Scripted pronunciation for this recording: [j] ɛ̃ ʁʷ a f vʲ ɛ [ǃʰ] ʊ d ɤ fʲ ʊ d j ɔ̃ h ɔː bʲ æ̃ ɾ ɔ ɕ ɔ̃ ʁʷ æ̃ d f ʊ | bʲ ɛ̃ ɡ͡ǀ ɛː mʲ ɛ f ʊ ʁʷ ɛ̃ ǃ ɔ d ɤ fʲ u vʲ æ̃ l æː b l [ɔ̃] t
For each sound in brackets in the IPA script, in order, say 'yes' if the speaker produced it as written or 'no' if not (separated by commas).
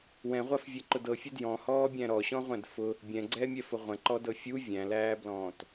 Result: no, no, no